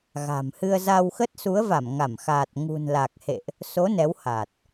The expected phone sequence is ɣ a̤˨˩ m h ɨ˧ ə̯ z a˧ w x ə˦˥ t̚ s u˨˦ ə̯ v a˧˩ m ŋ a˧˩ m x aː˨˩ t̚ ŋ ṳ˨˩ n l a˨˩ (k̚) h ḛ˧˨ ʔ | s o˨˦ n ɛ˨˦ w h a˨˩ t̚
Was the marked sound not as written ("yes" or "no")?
no